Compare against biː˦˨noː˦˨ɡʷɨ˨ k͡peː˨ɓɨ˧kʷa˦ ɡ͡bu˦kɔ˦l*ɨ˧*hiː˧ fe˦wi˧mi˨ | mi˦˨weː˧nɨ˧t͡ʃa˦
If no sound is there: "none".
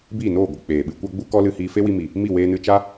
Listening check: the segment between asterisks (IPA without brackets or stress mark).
ɨ˧